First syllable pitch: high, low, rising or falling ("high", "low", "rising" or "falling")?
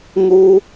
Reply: high